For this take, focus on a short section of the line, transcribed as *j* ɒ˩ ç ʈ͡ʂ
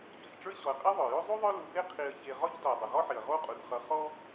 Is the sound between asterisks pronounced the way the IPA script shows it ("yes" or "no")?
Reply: no